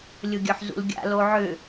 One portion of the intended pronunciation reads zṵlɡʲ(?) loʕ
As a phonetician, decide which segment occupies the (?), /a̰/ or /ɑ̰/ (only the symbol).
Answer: a̰